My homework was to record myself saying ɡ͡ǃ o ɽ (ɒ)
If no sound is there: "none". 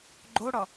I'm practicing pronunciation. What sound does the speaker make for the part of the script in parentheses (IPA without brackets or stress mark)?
ɒ